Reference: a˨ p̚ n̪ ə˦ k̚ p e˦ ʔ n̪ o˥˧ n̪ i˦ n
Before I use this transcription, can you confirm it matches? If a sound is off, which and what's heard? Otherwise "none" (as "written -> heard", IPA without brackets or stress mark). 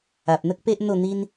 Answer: none